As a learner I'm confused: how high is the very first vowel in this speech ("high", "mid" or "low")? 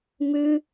high